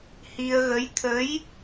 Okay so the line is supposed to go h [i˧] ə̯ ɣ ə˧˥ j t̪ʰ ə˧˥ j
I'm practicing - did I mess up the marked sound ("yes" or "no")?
no